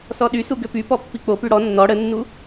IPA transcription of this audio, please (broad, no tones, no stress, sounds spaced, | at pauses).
s ɔ ɗ y s u ɡ ø p y p ɔ pː i k͡p o p y ɽ ɔ nː ɔ ɽ ə nː u